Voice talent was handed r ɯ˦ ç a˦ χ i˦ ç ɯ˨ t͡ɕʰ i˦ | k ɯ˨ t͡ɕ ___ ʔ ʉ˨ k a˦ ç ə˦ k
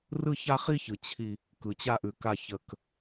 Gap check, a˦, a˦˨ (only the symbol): a˦